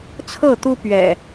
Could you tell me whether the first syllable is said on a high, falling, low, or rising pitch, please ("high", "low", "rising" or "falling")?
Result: falling